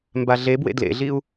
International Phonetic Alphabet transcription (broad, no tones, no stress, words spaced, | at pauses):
mbaɮebwḛ dlḛɮiu̯